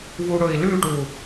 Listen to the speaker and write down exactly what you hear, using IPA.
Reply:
v u ɽ ɵ i̯ l ʉ ʈ u

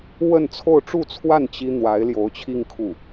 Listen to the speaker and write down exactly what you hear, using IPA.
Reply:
w ə˥˧ n t͡sʰ o˥˧ ʊ̯ ʈ͡ʂ u˥˧ t͡sʰ w a˥˩ n t͡ɕ i˥ n̪ w a˧˥ ɪ̯ l j o˧˥ ʊ̯ t͡ɕʰ i˥˧ ŋ kʰ u˥˩

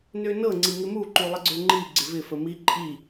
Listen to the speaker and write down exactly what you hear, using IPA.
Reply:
n ø n ɤ ŋ͡ǀ i ŋ ɪ m u ǃ u lˠ ɪ ɡ͡ǀ ø ŋ͡ǃ i ɡ͡ǀ ɪ v ɪ f ə m i ǃʼ i

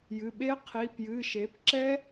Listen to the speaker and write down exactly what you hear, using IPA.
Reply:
j ɨ˩˧˩ ɓ e˦˥ qʰ i˩˧˩ p j ɨ˩˧˩ ʃ e˩˥ p ǁ ɛ˦˥

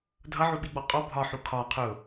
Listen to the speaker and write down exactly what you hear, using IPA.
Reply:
dʱ ʌ ʕ u ɓ i ɡ͡b ɔ qʼ ɔ bʱ ɒ ħ u kʰ ɒ qʰ ʊ

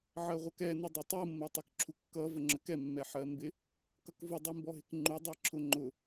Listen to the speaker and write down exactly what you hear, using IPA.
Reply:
ʕ ɜ ʁʷ ʌ k ɛ n ʊ dˤ ɪ tˤ u mː ɜ tˤ ɛ k ǁʰ u kː ʌ v ə ŋ͡ǁ ə k ɛ mː ɛ ħ ɜ m b ɪ | k ʌ k v ʊ dˤ i m b ɔ ɦ ɪ k ŋ͡ǃ u dˤ ɛ ǁʰ ʊ ŋ͡ǃ ʊ

